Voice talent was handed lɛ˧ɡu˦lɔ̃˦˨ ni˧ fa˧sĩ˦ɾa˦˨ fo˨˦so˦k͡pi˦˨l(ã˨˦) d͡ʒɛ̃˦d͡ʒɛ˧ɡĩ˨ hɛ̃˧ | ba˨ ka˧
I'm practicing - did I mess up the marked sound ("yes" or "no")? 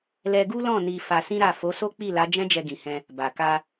yes